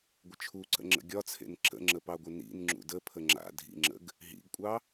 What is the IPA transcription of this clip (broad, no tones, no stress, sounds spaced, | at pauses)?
ɡʷ ə t͡ʃʰ u ǀ ə̰ ŋ͡ǁ ə̰ ɡʲ ɒ t͡sʰ ḛ n ǁ ə̰ ŋ͡ǁ ə p ɑ ɡʷ ə n ḭ n ŋ͡ǁ ṵ d ə pʰ ə ŋ͡ǁ a̰ dʱ ḭ ŋ͡ǁ ə̰ ɡ | ɦ ḭ ɡ kʷʼ ɑ